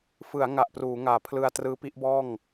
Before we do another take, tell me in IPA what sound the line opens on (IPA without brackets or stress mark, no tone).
f